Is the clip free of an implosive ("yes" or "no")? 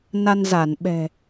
no